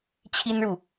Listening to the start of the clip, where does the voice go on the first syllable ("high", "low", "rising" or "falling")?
high